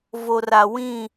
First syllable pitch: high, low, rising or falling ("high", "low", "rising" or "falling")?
low